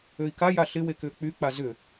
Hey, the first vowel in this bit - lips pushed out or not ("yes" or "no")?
yes